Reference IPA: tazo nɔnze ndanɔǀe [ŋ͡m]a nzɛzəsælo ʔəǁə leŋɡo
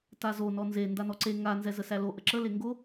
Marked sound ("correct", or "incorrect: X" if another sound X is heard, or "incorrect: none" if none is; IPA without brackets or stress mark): incorrect: ŋ